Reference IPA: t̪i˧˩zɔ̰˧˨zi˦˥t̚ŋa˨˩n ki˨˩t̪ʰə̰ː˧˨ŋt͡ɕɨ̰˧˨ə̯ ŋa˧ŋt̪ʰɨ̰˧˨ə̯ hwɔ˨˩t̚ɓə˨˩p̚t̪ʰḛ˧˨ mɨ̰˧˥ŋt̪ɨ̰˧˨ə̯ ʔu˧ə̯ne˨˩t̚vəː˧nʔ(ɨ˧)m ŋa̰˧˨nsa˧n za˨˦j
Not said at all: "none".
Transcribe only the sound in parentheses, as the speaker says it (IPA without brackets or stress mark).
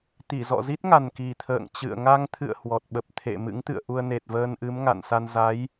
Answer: ɨ˨˦